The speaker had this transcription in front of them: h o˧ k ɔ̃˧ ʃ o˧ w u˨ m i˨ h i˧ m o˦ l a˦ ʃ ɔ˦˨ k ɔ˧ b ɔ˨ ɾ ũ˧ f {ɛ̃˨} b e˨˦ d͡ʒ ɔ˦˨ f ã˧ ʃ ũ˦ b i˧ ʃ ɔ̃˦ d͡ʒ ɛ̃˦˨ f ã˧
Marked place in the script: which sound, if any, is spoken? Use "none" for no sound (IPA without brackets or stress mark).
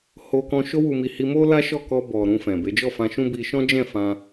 ɛ̃˨